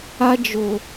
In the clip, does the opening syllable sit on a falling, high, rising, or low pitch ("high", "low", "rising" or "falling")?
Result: high